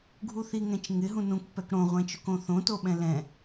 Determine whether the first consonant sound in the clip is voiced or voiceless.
voiced